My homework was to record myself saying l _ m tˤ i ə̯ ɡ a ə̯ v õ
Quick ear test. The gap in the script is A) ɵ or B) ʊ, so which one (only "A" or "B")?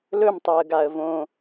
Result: A